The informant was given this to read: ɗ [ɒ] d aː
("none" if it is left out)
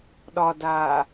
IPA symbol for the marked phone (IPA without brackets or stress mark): ɒ